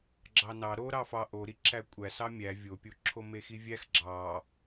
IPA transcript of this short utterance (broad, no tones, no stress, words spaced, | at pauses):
ɡ͡ǁɑnɑ ɾo ɾɑfɑ ʔoɾiǁæ kʷʼæ sɑmʲæ vʲopʲo ǁʰomexivʲæx ɡ͡ǁɑ